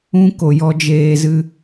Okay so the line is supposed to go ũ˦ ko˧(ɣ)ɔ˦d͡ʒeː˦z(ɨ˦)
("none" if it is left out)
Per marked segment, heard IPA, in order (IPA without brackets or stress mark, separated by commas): j, ɨ˦